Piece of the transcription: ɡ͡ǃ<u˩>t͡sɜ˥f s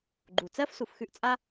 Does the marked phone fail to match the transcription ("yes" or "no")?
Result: no